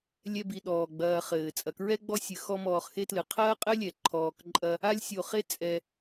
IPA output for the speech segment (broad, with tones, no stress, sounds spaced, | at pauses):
lʲ ɛ˦ b i˨ ɗ ɔː˩ ɡ͡b ɐː˨ χ ɘː˩ t͡sʼ ɐ˩ k ɹ ɛ˥ ɡ͡b ɔ˦ sʲ ɨ˩ x ɔ˦ m ɔː˨ χ x e˥ t l ɨ˩ qʰ ɐː˥ qʼ ɘ˥ lʲ ɛ˩ ǃʰ ɔː˨ k ǃʼ ɐ˦ | a˥ lʲ sʲ o˨ χ e˥ t͡sʼ ɛ˨